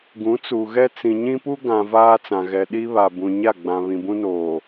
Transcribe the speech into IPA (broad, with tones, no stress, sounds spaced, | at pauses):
ɡ ũ˨˦ t͡s u˨ ɣ ɛ˦ t͡s ĩ˨ ɲ ĩ˦ p u˦ ɡ ã˨ v aː˦ t͡s ã˨ ɣ ɛ˨ ɗ i˦ β a˨ b ũ˨ ɲ a˦˨ ɡ͡b ã˨ β ĩ˨ b ũ˦ n oː˨